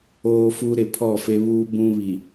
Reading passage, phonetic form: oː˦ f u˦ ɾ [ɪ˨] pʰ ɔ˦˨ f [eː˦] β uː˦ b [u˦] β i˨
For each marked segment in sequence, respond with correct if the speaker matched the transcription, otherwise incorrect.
correct, incorrect: e˦, incorrect: ũ˦

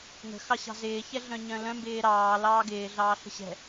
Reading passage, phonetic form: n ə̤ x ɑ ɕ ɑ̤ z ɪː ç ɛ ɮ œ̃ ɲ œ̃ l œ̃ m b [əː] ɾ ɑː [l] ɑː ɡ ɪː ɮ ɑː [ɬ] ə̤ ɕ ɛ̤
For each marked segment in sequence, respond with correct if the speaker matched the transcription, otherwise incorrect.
incorrect: ɪː, correct, correct

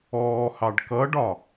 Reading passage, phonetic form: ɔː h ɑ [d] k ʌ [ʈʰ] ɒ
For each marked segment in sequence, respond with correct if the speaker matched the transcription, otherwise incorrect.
incorrect: ɖ, incorrect: ɖ

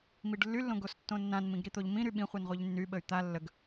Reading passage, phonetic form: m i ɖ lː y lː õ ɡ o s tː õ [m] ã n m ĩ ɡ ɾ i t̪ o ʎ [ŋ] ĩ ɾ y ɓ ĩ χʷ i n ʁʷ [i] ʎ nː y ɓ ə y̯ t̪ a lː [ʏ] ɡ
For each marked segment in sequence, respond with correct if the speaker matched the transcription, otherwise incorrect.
incorrect: nː, incorrect: m, correct, incorrect: ə

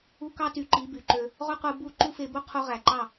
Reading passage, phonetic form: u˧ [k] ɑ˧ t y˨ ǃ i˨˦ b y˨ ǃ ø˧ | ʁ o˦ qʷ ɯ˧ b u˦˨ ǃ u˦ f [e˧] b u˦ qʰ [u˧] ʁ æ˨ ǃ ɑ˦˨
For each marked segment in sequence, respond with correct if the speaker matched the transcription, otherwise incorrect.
correct, correct, correct

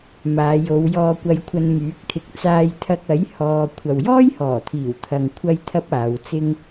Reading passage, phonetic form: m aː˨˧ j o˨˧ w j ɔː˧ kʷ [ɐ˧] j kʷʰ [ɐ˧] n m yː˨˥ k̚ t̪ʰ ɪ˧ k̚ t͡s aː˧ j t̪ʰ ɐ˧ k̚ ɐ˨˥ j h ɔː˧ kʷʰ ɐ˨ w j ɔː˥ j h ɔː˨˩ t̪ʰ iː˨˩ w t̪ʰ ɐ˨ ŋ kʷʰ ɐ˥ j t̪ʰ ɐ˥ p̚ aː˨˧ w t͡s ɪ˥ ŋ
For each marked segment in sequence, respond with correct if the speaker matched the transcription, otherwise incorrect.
correct, correct

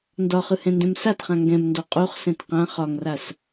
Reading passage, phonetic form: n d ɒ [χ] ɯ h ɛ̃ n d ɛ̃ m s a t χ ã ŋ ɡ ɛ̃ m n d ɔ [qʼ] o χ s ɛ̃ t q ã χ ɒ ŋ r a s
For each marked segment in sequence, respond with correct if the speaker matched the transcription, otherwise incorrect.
correct, correct

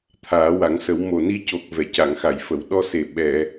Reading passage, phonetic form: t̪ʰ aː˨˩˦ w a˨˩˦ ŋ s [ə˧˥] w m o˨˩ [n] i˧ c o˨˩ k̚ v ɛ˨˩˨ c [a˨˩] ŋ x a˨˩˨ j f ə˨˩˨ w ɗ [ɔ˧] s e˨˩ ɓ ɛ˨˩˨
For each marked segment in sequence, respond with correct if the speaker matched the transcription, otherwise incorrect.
incorrect: ə˨˩˦, correct, incorrect: a˨˩˨, correct

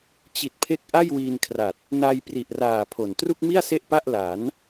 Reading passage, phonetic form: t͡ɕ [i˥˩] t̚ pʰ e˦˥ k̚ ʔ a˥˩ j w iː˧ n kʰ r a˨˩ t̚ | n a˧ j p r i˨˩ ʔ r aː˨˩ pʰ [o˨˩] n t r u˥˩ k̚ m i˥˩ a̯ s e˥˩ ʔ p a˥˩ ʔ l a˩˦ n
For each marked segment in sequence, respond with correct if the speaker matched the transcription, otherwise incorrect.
incorrect: i˨˩, correct

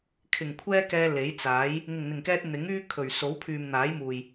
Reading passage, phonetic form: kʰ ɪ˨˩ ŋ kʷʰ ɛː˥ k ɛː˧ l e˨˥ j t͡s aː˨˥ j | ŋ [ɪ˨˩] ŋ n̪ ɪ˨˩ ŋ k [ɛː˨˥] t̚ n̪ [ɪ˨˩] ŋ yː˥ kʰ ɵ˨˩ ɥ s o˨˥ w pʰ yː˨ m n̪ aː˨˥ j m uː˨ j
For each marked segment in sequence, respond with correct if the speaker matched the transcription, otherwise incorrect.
correct, incorrect: ɛː˧, incorrect: ɪ˨˥

